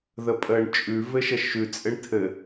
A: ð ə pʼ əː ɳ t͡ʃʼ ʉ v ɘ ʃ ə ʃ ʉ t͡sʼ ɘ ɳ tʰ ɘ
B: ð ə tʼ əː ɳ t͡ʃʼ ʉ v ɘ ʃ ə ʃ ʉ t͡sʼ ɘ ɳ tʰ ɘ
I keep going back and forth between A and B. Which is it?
A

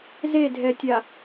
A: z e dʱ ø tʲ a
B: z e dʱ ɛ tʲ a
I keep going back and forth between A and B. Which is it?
B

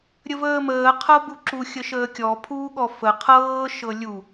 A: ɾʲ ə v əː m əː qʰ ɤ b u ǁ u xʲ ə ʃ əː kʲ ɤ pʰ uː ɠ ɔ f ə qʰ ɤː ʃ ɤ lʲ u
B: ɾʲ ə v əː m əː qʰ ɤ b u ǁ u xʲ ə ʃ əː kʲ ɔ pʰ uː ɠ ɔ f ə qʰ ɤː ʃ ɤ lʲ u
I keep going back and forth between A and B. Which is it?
B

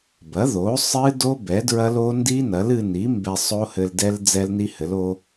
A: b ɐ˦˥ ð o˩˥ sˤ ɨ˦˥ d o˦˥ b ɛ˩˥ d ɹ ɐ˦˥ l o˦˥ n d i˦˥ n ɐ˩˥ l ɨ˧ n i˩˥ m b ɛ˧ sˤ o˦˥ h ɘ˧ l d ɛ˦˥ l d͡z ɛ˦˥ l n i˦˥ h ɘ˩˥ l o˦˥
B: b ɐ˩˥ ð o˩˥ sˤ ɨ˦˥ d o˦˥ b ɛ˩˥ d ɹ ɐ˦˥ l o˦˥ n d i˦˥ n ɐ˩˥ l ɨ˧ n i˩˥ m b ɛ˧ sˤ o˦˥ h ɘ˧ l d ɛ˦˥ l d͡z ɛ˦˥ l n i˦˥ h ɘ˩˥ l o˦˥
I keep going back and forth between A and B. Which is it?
B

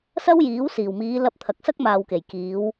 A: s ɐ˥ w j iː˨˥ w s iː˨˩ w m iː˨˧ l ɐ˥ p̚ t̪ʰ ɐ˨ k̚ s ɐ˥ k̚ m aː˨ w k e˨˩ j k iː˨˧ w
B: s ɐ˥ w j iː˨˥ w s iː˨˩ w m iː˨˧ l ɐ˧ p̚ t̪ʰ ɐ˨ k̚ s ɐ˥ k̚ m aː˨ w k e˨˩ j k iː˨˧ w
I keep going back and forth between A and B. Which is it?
B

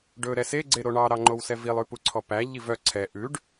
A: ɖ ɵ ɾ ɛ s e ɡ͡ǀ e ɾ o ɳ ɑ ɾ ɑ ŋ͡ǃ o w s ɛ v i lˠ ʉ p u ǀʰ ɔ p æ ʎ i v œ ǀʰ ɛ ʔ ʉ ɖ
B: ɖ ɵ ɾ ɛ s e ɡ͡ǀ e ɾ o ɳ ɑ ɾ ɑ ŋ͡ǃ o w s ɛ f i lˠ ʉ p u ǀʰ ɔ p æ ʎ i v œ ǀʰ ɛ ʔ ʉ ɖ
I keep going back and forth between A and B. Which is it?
A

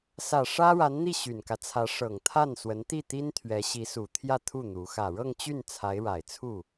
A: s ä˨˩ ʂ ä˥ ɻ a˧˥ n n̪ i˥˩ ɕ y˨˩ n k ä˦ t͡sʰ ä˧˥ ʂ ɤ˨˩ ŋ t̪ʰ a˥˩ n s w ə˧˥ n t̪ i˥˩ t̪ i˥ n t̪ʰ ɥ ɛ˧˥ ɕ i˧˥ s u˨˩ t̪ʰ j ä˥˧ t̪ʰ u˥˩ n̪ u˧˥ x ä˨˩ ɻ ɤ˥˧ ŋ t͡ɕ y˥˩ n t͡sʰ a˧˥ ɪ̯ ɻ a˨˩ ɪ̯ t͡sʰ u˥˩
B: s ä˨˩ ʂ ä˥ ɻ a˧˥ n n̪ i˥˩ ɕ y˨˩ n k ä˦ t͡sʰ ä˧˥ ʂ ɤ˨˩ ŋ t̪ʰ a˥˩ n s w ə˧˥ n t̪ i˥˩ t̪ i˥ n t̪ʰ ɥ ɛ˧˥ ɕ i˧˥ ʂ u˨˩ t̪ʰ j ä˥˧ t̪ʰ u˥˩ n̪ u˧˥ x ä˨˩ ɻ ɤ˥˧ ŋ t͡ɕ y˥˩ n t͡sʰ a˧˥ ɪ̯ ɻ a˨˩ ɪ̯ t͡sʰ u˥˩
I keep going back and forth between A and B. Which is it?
A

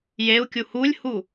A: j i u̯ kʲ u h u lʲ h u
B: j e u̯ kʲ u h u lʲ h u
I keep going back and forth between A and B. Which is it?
B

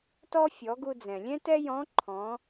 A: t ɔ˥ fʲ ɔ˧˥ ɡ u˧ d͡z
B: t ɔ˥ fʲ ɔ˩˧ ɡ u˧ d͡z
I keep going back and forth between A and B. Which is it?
B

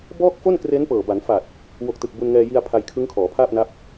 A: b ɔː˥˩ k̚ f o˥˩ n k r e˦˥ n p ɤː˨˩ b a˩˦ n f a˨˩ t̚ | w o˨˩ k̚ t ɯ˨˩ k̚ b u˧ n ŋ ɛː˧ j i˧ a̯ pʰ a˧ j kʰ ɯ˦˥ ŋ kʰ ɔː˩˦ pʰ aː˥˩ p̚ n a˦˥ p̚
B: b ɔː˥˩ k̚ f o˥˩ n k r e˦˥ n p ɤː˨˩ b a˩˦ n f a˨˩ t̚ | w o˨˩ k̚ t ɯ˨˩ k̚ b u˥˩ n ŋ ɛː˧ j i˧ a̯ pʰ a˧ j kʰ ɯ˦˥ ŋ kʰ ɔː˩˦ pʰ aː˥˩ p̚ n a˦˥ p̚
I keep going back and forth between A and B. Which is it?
A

